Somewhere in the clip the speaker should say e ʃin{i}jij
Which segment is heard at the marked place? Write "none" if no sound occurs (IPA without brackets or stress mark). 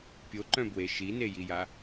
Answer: e